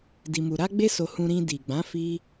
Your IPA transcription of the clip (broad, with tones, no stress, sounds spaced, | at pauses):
d i˧ m u˧ ɾ a˦ ɡ͡b e˦ s o˧ h ũ˧ ɾ ĩ˧ d i˨ ɡ͡b ã˨˦ f i˦